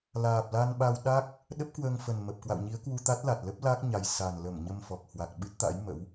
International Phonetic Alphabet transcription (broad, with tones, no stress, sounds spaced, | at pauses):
l aː˨˩ p̚ l a˧ n ɓ a˧ w ɗ a˦˥ k̚ | ɗ ə˦˥ p̚ k w əː˧ ŋ f ə˨˩ n m ə˨˩ p̚ k w a̰˧˨ w ɲ i˨˦ ə̯ k w u˧ t̪ a˦˥ t̚ l a˨˩ t̚ l ə˦˥ p̚ l a˦˥ k̚ ɲ a˨˩ j s a˨˩ n l ə˧˩ m ɲ ə˧ m f ɔ˨˩ k̚ h w a˨˩ k̚ ɓ ɨ˦˥ t̚ t̪ a̰˧˥ j m ə̰˧˥ w